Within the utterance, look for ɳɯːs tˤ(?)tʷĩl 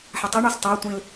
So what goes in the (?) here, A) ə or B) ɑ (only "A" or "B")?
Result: B